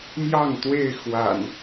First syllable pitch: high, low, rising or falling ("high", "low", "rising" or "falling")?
falling